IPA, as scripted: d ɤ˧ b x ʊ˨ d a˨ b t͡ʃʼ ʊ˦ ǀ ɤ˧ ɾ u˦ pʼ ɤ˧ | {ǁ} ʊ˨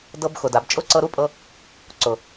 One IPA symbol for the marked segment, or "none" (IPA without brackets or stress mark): ǀ